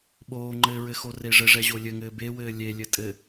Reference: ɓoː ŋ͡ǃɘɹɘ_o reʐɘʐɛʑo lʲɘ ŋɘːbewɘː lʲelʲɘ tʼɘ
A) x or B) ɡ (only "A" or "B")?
A